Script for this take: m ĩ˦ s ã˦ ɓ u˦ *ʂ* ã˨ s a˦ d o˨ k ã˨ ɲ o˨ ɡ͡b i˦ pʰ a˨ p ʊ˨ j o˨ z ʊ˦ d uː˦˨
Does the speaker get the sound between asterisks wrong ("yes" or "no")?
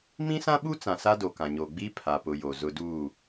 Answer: yes